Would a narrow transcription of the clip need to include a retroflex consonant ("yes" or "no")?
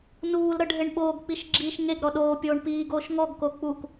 yes